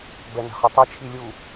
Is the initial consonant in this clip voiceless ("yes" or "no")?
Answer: no